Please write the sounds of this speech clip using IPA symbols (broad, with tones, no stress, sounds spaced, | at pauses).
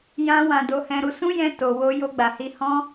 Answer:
j ã˧ w ã˨ d o˧ h ɛ̃˧ ɾ u˧ s ũ˦ j ɛ̃˧ t o˨ w o˧ j o˧ ɡ͡b a˨ h i˧ h ɔ̃˦